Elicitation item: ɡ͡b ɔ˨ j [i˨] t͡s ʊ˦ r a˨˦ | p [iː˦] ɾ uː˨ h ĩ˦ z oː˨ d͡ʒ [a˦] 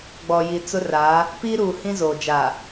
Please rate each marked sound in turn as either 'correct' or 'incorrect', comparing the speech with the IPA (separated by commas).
correct, correct, incorrect